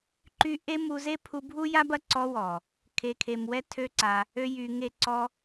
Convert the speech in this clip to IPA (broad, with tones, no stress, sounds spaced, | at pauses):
ǃ y˧ ʔ e˧ m u˧ z e˦ pʰ u˧ bʱ u˦ j a˦ b ɐ˧ ǀ ɔ˧ w ɔ˨ | kʰ e˨ kʰ e˨ m w ɛ˧ tʰ ø˦ ǀ a˧ | ø˧ j y˨ ŋ e˦˨ ǀ ɔ˦